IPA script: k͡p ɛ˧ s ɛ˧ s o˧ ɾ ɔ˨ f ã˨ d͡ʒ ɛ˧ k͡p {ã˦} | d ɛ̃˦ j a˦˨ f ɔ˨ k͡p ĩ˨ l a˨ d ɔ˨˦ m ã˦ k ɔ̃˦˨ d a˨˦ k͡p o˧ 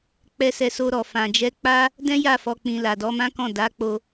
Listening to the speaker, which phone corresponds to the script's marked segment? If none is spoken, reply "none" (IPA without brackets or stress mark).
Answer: a˦